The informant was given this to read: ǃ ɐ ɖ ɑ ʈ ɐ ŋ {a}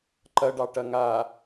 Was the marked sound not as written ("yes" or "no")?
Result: no